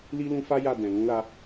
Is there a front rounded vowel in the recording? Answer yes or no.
no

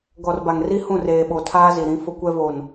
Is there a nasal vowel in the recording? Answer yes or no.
yes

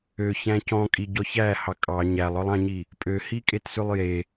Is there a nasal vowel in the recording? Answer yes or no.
yes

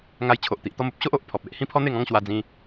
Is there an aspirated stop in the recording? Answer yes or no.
yes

